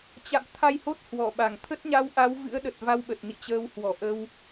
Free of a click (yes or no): yes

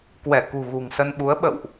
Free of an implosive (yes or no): no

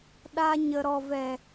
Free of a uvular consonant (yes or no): yes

